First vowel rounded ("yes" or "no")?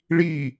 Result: no